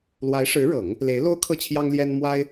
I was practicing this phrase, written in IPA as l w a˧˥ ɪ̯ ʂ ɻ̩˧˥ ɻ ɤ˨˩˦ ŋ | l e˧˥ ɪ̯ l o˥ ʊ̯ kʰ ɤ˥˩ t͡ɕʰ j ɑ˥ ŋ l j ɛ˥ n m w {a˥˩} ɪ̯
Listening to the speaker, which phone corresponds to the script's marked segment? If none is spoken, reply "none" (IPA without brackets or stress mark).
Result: a˥